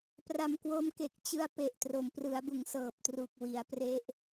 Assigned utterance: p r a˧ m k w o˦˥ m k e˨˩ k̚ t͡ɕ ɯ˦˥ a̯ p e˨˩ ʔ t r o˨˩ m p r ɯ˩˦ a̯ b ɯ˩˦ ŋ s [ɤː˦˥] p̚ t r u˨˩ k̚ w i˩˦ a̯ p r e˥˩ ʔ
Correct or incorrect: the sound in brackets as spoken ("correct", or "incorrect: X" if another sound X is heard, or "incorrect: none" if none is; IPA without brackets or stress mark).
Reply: incorrect: ɤː˨˩